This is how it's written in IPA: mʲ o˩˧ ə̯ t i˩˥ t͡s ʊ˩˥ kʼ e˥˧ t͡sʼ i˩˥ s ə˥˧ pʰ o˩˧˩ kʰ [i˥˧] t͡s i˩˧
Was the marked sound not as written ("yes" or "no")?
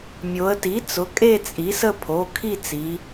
no